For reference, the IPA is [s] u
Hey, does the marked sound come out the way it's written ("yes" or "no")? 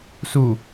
yes